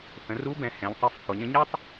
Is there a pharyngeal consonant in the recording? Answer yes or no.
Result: no